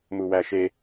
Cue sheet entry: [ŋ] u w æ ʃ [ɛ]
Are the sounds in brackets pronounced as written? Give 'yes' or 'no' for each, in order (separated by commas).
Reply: no, no